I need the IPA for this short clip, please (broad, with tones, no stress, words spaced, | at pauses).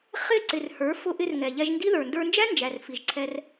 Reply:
χɪ˦˨ǀɪ˨rhə˞˨˦ fʊ˧ʔɪ˧r ŋɛ˨ʎɛ˧ʒndi˦ ðə˞˨ndə˞˧nd͡ʒæ˦nd͡ʒæ˨r fi˨ʒǀʰɛ˧r